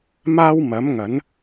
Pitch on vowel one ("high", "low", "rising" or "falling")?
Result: high